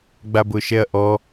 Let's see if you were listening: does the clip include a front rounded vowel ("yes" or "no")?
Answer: no